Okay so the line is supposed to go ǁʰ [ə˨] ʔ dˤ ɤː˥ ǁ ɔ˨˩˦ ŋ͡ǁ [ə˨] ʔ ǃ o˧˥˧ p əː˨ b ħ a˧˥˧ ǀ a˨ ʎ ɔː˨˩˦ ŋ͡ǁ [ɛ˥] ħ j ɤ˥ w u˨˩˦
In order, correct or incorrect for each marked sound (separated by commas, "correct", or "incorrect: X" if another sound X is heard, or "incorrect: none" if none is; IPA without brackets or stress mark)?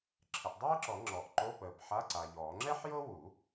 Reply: correct, incorrect: ɔ˨, correct